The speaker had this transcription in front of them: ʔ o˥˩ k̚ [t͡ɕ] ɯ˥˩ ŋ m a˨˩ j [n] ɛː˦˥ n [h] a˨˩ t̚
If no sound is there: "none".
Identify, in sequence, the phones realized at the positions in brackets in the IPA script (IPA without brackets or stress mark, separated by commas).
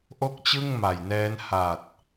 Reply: t͡ɕ, n, h